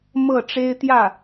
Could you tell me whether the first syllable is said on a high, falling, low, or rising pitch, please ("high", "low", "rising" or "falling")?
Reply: falling